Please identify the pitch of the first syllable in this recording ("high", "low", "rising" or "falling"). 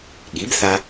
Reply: rising